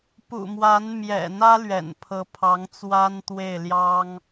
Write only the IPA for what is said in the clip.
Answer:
p ṵ˨˩ m w a˧˥ n m j ɛ̰˨˩ n̪ ä˥ l ɥ ɛ̰˨˩ n pʰ ɤ˧˥ pʰ ɑ˧˥ ŋ t͡s w a˥ n t̪ w e˥˩ ɪ̯ l j ɑ˥ ŋ

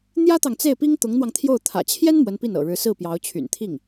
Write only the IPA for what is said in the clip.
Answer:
n̪ j ä˥ t̪ ɑ˨ ŋ t͡s e˥˩ ɪ̯ p i˥ ŋ t̪ ʊ˧˥ ŋ n̪ w ɑ˧ ŋ t̪ʰ j o˥˩ ʊ̯ t̪ʰ ä̰˨˩ t͡ɕʰ j ɛ˥ n m w ə˧˥ n p i˥˩ n ɤ̰˨˩ ɻ ɻ̩˧˥ s ɹ̩˥˩ p j ɑ˧˥ ʊ̯ t͡ɕʰ y̰˨˩ n t̪ʰ i˥˩ ŋ

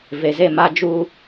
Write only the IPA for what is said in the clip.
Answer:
v e˨ z e˦˨ m a˦ d͡ʒ u˦

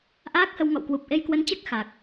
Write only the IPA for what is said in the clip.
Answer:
ʔ aː˦˥ k̚ h ə˧ w ŋ ɔ̰˧˨ w k w u˨˩ p̚ ʔ e˧ j k w ə˨˦ n t͡ɕ ɛ˦˥ k̚ x a˨˩ k̚

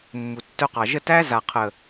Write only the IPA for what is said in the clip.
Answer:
mː u˨ tː œ˧ q ɑ˨ ʒ ə˦˨ t æ˦ z a˨ qʰ ə˨

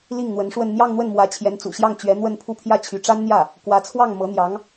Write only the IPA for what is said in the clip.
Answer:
l i˥˩ ŋ n̪ w ə˧˥ n ʂ w ə˥˧ n n̪ j ɑ˥˧ ŋ n̪ w ə˥˩ n m w ä˧˥ t͡ɕʰ j ɛ˧˥ n t͡s ṵ˨˩ ɕ j ɑ˥˩ ŋ t͡ɕ ɥ ɛ˧˥ n̪ w ə˥˧ n pʰ u˥˧ pʰ j ä˥˩ t͡ɕʰ y˧˥ ʈ͡ʂ a˥ n n̪ j ä˥˩ | k w ä˧˥ t͡sʰ w ɑ˥˩ ŋ m ɤ˧˥ n̪ j ɑ˧˥ ŋ

